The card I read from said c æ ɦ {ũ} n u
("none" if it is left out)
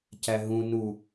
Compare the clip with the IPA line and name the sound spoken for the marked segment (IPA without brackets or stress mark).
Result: ũ